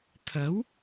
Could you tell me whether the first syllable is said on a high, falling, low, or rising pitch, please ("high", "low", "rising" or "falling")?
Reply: rising